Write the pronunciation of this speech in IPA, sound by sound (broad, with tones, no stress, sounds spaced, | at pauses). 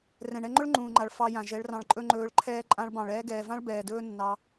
r ɛ̃˨ ɳ ɛ˧ ŋ͡ǃ ɵ˦ ɭ ŋ͡ǃ ũː˨ ŋ͡ǃ a˨ ɭ f ɑ˧ j ã˨ ʒ ɛ˨˦ ɭ r ɑ̃˧ ɭ ǃʼ ɵ˦ ŋ͡ǃ ɵː˧ ɭ ǃʰ ɛː˦ ǃʼ ã˧ ɭ b ɑ̃˨ ɭ ɛː˧ ɡ ɛː˨ v ã˦ ɭ b ɛː˨ d ɵː˦ nː ɑ˧